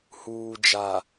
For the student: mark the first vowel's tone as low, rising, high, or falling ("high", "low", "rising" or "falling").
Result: low